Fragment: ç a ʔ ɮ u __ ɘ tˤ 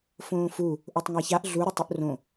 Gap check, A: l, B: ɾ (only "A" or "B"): B